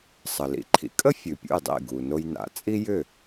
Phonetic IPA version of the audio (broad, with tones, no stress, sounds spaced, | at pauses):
sˤ ə˩ l ḭ˧ ǃʰ ḭ˩˥ kʼ ə˥ fʲ ʉ˩ pʲ ṵ˥˩ j dˤ ḭ˥˩ ɡ u˩ n o˧ j n a̰˩˥ t͡sʼ i˥ j ʏ˥˩